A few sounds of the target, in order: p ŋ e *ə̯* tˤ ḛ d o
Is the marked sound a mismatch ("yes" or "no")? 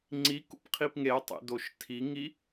no